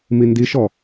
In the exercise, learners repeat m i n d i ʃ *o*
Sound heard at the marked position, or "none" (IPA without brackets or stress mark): ɔ